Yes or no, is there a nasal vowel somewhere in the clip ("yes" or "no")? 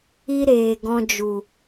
yes